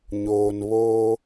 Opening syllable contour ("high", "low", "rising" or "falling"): low